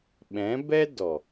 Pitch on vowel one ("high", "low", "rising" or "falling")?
rising